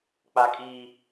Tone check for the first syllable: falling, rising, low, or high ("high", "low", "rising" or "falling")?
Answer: high